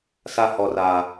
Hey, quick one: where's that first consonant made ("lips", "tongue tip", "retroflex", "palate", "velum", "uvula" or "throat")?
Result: tongue tip